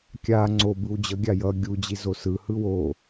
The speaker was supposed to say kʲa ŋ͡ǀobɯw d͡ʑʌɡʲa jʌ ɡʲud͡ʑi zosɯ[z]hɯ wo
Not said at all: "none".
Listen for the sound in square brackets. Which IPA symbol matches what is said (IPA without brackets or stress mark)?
none